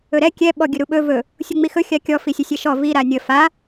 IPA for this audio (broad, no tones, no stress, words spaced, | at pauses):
ɵɾɛ kʲɛ ɓɔɡʲɵɾuɓɵ vɵ | sʲuŋ͡mixɵ xʲakʲɔ fisʲəsʲɛʃɔ vi ɾanʲə fa